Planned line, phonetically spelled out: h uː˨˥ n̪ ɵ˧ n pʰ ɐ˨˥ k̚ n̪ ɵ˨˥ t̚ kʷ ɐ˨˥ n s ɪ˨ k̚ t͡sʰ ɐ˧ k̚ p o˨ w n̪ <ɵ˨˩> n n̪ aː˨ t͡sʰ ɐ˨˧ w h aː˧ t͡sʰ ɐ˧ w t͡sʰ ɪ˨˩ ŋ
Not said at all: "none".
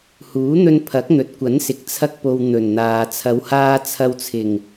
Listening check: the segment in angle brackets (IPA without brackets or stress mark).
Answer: ɵ˨˩